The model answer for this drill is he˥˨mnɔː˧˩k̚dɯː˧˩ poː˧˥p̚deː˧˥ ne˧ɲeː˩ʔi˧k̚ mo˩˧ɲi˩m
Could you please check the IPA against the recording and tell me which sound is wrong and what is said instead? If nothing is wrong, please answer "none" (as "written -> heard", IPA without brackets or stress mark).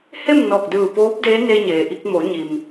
none